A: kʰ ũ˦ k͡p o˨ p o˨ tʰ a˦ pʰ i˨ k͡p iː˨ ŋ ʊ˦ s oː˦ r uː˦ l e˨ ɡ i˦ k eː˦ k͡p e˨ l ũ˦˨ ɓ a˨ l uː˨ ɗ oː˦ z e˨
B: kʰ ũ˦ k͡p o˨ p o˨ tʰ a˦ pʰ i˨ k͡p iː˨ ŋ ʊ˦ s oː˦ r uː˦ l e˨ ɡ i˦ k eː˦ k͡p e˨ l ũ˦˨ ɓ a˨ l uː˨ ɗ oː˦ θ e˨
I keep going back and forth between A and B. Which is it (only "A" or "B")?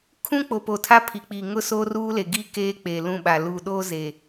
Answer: A